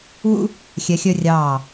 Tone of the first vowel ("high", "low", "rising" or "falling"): high